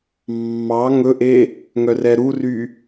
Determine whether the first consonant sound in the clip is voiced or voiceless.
voiced